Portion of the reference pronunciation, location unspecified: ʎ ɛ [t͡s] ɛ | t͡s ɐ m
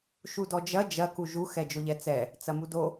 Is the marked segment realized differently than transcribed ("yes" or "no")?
no